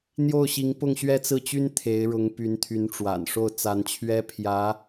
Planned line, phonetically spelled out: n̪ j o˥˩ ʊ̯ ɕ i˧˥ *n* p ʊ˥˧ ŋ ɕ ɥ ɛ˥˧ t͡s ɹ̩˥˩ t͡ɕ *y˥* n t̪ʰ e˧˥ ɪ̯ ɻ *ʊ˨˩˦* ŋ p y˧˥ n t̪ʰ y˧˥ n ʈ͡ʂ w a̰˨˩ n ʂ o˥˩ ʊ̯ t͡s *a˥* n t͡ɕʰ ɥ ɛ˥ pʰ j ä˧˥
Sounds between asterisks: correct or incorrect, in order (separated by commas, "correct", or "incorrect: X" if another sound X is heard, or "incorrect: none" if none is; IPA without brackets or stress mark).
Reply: incorrect: ŋ, correct, incorrect: ʊ˧˥, incorrect: a˧˥